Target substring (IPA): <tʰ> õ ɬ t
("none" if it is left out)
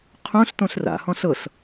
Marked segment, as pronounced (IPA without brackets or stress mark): qʰ